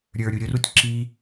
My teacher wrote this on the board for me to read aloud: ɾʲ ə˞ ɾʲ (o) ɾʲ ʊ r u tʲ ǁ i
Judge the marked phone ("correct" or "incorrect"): incorrect